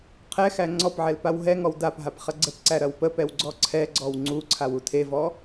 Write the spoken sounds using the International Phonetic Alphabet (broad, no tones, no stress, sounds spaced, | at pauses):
qʰ ɛ x æ ŋ͡ǀ ɔ p ʕ ɛ l p a w ɦ ɛ ŋ ɔ w d a p ɦ a p χ ɐ ɡ͡ǀ ə p ǀ æ ɾ ɐ w p ə p ɛ w ɡ͡ǀ ɔ ǀʰ ɛ ɡ͡ǀ ɔ w ŋ͡ǀ u ǀʰ a w u tʰ e v ɔ